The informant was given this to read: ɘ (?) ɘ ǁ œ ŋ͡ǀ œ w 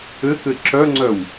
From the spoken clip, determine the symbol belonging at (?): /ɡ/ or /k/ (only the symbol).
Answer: k